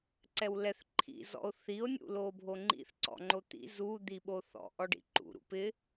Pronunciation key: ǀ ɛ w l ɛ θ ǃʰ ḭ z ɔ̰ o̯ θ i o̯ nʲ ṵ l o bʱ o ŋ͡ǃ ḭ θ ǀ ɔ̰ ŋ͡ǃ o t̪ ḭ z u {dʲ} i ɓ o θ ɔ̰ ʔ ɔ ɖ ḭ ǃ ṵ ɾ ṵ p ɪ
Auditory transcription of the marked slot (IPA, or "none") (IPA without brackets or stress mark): d̪